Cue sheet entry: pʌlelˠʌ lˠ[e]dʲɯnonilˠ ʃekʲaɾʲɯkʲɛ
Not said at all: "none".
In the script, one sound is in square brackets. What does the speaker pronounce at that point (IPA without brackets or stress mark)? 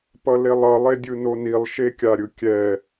e